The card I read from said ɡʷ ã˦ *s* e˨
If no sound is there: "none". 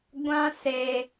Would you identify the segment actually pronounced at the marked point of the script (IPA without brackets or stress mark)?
s